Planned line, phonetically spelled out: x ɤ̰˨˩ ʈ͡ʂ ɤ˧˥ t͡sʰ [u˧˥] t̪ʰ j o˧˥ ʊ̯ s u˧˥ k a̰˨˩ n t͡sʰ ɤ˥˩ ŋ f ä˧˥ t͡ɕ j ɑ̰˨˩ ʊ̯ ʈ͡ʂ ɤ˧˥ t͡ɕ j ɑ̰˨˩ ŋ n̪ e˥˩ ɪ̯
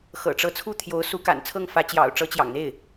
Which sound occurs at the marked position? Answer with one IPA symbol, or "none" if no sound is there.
u˥˩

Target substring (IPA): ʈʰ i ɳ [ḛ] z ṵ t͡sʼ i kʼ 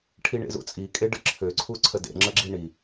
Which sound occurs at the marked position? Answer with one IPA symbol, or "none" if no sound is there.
ḛ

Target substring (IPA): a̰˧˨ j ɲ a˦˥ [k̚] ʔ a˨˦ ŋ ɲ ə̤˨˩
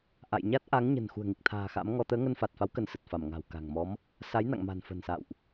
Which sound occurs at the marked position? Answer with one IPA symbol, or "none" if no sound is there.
t̚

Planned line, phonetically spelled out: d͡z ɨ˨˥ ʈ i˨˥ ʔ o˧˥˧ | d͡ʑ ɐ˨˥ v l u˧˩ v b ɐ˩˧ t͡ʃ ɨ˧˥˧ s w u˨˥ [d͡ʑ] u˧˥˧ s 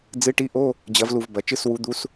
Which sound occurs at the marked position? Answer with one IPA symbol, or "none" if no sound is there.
d̪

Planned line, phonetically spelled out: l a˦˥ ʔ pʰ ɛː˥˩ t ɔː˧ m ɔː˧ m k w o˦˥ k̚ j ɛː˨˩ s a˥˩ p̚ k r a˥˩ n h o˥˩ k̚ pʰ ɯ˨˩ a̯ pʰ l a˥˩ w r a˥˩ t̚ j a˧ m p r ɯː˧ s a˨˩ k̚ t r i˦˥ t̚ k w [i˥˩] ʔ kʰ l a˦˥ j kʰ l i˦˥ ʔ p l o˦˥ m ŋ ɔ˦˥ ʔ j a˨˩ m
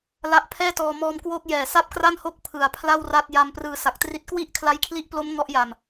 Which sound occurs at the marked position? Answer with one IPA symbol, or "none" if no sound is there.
i˥˩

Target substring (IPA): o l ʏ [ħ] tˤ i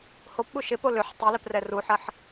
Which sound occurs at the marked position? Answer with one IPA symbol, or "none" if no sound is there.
ħ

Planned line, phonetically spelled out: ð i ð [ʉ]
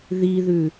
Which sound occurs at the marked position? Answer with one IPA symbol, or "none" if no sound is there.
ʉ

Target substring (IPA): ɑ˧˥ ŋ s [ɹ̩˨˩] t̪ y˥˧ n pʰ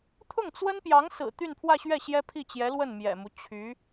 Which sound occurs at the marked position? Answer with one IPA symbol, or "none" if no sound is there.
ɹ̩˨˩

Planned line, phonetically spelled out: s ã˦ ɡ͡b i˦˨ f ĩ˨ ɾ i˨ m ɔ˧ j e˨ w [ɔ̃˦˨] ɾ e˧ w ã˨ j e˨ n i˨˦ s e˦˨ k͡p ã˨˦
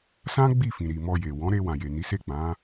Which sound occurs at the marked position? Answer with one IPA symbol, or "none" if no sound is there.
ɔ̃˨˦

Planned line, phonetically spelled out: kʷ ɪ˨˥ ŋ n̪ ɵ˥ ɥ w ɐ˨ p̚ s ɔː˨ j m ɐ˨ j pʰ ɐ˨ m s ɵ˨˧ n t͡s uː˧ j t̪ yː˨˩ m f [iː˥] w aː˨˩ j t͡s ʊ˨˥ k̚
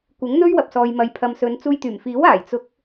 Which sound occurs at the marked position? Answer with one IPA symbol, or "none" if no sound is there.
iː˨˥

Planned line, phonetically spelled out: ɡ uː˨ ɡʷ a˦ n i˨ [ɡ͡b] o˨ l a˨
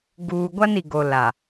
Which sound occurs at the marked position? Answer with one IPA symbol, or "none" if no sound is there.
ɡ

